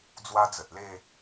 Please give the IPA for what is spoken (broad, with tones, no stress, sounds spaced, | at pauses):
d͡z w a˦ d͡z ə˨ t̚ l e˥˧